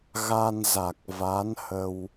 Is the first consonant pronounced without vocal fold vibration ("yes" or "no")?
no